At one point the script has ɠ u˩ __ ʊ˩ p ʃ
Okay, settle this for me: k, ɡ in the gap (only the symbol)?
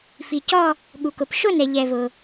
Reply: k